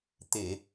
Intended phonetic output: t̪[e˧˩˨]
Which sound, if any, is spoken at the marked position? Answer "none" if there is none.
e˧˩˨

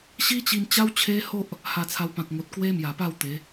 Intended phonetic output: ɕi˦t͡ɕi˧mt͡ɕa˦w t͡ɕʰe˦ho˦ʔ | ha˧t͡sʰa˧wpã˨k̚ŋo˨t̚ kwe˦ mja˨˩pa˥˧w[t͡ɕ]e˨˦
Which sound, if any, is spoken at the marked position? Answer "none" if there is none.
t̪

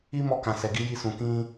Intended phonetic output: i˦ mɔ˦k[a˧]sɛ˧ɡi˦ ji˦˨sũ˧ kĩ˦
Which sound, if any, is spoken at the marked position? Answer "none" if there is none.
ã˧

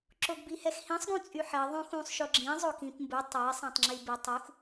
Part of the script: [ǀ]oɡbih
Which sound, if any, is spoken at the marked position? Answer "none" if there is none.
ǁ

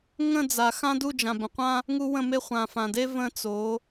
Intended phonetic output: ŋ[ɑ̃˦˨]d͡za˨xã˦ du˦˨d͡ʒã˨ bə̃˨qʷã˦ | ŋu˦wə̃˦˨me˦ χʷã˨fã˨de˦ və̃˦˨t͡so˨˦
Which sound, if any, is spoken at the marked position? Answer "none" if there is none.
ə̃˦˨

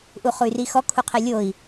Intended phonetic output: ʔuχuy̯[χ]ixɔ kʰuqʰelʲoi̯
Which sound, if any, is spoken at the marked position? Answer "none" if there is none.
r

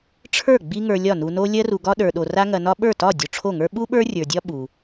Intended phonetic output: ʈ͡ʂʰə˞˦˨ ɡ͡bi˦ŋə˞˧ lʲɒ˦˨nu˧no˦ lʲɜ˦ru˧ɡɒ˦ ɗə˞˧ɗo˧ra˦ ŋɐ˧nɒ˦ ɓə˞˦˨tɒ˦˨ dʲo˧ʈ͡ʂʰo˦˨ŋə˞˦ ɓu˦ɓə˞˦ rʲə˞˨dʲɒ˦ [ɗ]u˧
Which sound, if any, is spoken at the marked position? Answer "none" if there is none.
ɓ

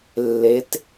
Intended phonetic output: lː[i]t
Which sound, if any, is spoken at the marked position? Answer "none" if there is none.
e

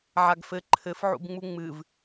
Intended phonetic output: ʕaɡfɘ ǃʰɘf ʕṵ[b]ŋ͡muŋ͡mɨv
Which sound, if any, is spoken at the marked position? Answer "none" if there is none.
b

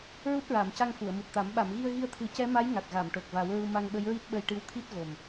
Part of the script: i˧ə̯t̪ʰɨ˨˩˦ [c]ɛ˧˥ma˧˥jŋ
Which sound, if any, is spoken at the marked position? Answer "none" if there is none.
c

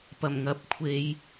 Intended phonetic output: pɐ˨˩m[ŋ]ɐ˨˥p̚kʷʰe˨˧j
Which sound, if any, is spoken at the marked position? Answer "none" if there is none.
ŋ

